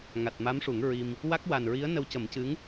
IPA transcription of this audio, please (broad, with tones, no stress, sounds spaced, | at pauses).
ŋ a˨˩ t̚ m a˧˥ m ʂ u˨˩˦ ŋ ɹ i˧ m | w a˦˥ k̚ w a˨˩ n ɹ i˧˥ ə̯ n ə˧ w c ə˨˩˦ m c ɨ˧˥ ŋ